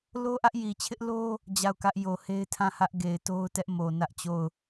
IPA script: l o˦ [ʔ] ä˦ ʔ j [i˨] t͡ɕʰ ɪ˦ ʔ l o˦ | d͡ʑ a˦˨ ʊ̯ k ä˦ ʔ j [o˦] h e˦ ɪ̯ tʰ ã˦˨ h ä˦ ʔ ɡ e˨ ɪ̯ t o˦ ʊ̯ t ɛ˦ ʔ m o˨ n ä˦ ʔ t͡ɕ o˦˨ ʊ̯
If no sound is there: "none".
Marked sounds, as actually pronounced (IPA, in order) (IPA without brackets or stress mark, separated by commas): ʔ, i˨, o˨